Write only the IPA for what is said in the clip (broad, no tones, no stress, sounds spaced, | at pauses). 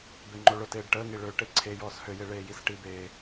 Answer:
b e ŋ͡ǃ o ɭ ʊ t eː ɖ ʈ əː ŋ i ɭ ø ʈ e ǀʰ e j ɔː s h ø j e ɭ eː j i s ʈ i b eː